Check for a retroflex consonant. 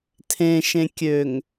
absent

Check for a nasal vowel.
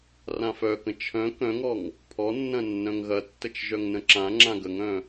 present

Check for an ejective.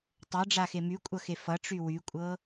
present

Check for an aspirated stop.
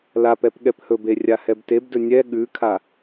present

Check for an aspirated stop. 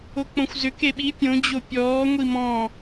absent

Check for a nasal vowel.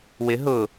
absent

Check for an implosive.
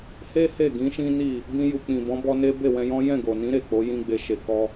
absent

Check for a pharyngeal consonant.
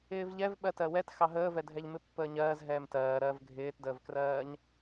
absent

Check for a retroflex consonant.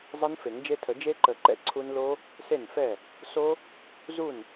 absent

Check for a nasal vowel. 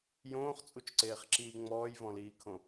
present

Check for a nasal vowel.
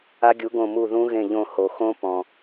present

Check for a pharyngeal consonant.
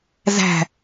absent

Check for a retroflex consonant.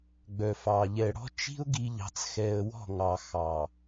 present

